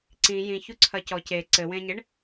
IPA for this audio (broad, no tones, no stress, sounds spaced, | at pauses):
ǀ ĩ j ĩ ç u ǀʰ ɐ c ɔ c e ǀ ɘ w ẽ ɲ e ɳ